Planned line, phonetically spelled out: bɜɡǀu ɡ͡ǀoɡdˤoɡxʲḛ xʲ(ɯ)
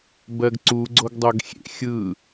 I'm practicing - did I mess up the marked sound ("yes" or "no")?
no